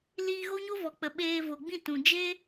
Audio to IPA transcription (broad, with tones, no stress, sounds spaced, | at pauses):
l iː˧ ɣ o˦ ɲ o˦ v ɔ˨ k͡p ə˨ ɓ eː˧ v o˨ ɡ͡b ĩ˦˨ t ũ˨ d͡ʒ e˦